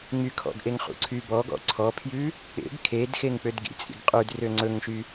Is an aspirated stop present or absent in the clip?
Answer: present